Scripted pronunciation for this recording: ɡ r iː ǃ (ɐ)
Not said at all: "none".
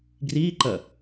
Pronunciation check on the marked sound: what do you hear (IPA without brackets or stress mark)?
ɐ